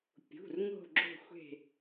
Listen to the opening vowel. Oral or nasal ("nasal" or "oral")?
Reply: oral